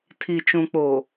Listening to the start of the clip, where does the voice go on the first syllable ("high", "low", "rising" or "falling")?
low